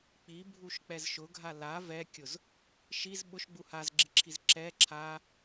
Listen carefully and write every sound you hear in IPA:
k͡p i bʱ u ʃ k͡p ɛ z ʃ ʊ ɡʱ a l a v ɛ kʲ ʊ z | ʃ i z ɓ ʊ ʃ ɡ͡b u h a z ɡ͡ǁ i ǁʰ i z ǁ ɛ ǁʰ a

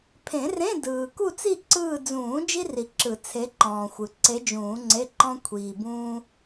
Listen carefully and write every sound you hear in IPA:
pʰ ẽ˨˩˦ r ẽ˧˥˧ d ɯː˨ k u˥˧ t͡s i˥˧ ǀ ɯː˥˧ d͡z ũː˨˩˦ d͡ʒ i˥ r i˨ ǁ ɯ˨˩˦ t͡sʰ e˧˥ ǃ ɔ̃ː˨ xʷ ɯ˨ ǀ e˧˥ d͡ʒ ũː˨˩˦ ŋ͡ǀ e˧˥˧ ǃ ɔ̃˥ kʷʰ iː˨ b ũː˥

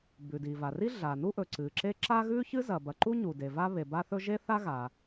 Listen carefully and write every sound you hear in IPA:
b ʉ˩ d i˩ v a˩ r i˥ ɮ a˩ n u˥ ʔ ɵ˩ ǀ ɨ˩ ǁ e˥ ǁ a˥ ɣ ʉ˥ ç ɨ˥ z ɐ˩ b ɐ˩ ǃ u˥ ɲ u˩ d e˩ v a˥ β e˩ b a˥ θ ɵ˥ ʒ e˥ θ a˥ ɣ a˩

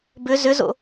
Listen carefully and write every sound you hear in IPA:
b ʏ z ʏ z o̰

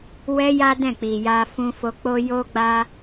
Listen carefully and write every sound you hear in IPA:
w ɛ˧ j a˦ d ɛ̃˦˨ k͡p i˨ j a˧ f ũ˧ f o˧ k͡p o˦ j o˦ ɡ͡b a˦

